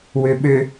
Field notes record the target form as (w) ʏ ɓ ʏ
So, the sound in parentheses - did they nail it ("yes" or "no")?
yes